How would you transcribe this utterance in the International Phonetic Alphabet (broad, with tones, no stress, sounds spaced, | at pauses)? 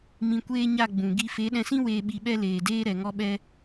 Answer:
m ĩ˧ kʷ eː˦ ɲ a˦˨ ɡ͡b ũ˨ ɡ i˧ f e˨˦ ɗ ɛ̃˧ s ĩ˦ w eː˧ ɓ i˧ ɓ ɛ˦ l eː˨ d eː˦ ɾ ɛ˨ ŋ ɔ˧ ɓ ɛ˧